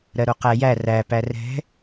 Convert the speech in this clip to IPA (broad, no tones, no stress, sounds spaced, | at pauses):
ɾ ɜ ɾ o q æ j æ r æ p æ r ɛ̤